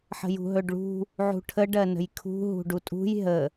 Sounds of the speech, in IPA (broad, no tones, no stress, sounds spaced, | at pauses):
ħ ə̤ j ṳ ɦ ɵ ɖ ɭ ṳ | ʕ ṳ ʈʰ ə ɖ ɜ n ə̤ j kʰ ṳ ɦ ṳ ɖ u tʼ ṳ j ɦ ə